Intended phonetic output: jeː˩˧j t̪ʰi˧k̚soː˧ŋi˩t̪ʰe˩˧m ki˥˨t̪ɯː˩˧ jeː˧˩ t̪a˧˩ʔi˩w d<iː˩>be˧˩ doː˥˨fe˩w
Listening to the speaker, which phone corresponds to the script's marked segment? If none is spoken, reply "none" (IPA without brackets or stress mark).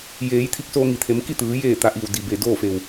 i˩